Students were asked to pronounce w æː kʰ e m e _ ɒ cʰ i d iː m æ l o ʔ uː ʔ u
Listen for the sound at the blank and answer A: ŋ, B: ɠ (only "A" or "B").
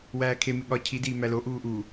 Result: B